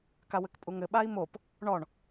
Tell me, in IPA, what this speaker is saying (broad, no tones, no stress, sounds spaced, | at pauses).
k a w ɘ k pʼ u ŋ ɘ ɓ a i̯ m o p | ɳ ɔ ɳ